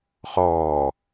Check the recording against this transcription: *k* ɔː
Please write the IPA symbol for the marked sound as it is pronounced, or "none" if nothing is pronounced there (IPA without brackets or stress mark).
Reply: χ